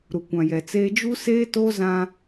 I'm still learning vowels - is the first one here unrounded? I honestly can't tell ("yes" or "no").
no